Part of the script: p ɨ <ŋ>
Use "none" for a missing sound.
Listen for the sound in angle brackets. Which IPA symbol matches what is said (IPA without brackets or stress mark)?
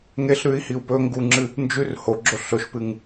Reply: ŋ